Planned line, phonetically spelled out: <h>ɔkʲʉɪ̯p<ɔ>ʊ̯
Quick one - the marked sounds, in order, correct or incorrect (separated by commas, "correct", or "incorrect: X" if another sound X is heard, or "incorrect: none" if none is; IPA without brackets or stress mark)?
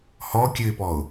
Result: correct, correct